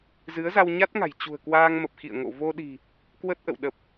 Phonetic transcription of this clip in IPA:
z ɨ˨˦ ə̯ z a˧ w ɲ a˦˥ t̚ ŋ a̤˨˩ j t͡ɕ ṳ˨˩ ə̯ k w aː˧ ŋ m ə˨˩ p̚ x ḭ˧˨ ə̯ ŋ o̰˧˨ v o˧ ɗ i̤˨˩ | k w ə˦˥ t̚ ʔ ə̰˧˨ w ɗ ə˨˩ p̚

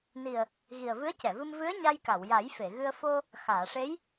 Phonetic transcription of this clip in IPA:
n i˨˩ ə̯ | ɣ i˨˩ ə̯ v ɨ˧˥ ə̯ c ɛ˨˩˨ v ɨ˧ m v ɨ˧˥ ə̯ ɲ a˧ j k a˨˩˨ w j a˨˩˦ j f e˨˩˨ ɣ ɨ˧ ə̯ f o˧ | x aː˨˩˨ ʂ e˧˥ j

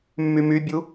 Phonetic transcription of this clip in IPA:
mː y m y bʲ u

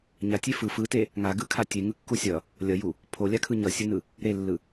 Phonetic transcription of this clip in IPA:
ɲ a tʲ e f ɯ f ɯ t e | ŋ a ɡ ɯ kʰ a tʲ e ŋ ɯ kː u sʲ ʌ | lʲ ʌ j u | pʰ o lʲ a kʰ ɯ ɲ ʌ sʲ ɯ n ɯ | ɾ e lː ɯ

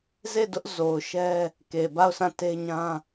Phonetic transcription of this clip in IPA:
z e˦˨ d ʊ˦ ʔ z o˨ ʊ̯ ʃ ɛ˦ | k e˨ b a˦˨ ʊ̯ s ã˦˨ t e˦ ɲ ã˦

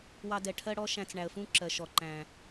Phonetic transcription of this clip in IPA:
w ɑ˧ d ɛ˨ ʈʰ ɜ˦ ɽ ɔ˦ ʃ æ̃˧ t͡s ɳ æ˨ ə̯ f ũ˦ ǁ ɜ˨ ʃ ɔ˨ ǃ æ̃˨

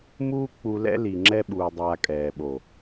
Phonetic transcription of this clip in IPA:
m uː˦ k͡p u˧ l ɛ̰˦ l i˨ ŋ͡ǁ ɛ˧ ɓ uː˨ dˤ aː˨ kʼ ɛː˨ ɓ o˨

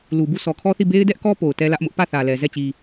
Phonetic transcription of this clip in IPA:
l u˨ b u˦˨ sʰ ɔ˨ kʰ ɔ˦ θ i˦˨ b e˦ ɪ̯ d ɛ˦ ʔ k ɔ˦ p o˨ ʊ̯ t ɛ˦ l ä˦ ʔ m ʊ˦ ʔ p ä˦˨ θ ä˨ l ɛ˨ z ɛ˦˨ t͡ɕ i˨

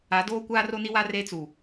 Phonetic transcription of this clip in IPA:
a˨˦ d oː˦ kʷ aː˦ r o˦ n i˦ w a˦ r e˦ t͡s u˨

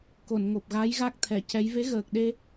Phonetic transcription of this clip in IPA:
k o˨˩˨ n ŋ o˨˩ p̚ ɣ a˧˥ j ɣ a˦˥ k̚ t̪ʰ ɛ˨˩˨ c ɛ˧˥ j v e˧˥ ɣ əː˨˩ k̚ ɗ e˧

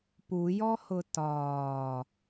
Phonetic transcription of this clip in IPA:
p u j ɔ h ʊ t ɒː

